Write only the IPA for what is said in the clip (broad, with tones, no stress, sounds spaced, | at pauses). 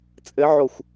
t͡sʼ ɘ˧˥ ʕ o˧˩ xʷ